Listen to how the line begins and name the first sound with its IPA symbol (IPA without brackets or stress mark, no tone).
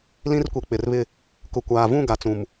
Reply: l